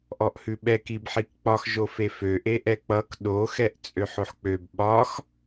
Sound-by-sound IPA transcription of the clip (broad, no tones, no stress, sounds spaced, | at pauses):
ʔ ɔ ʔ h ʉ ɓ ɛ k i b ħ i k k͡p ɒ x ʒ o f e f ø ʔ e ʔ ɛ k͡p ʌ k ɗ o x ɛ ʔ t͡sʼ ø ħ o ħ k͡p ø b ɓ ɒ x